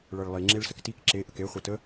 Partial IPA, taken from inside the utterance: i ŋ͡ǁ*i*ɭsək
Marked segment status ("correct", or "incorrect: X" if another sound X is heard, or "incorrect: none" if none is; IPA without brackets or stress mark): incorrect: e